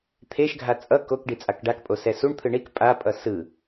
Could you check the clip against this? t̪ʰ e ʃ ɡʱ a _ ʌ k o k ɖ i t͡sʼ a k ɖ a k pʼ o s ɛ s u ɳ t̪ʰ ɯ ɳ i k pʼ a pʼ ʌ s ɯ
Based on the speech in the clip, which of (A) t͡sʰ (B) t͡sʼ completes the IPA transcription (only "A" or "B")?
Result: B